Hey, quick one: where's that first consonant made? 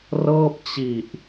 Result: tongue tip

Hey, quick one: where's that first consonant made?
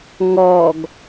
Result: velum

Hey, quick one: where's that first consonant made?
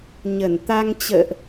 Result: palate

